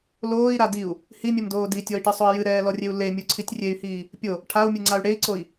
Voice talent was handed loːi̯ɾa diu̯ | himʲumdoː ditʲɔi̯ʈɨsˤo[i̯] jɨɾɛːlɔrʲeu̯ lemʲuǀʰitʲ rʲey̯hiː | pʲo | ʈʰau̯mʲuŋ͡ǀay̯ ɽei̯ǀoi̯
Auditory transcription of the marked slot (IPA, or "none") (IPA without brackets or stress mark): i̯